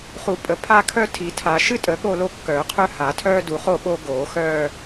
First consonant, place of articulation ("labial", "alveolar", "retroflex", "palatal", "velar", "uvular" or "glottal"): uvular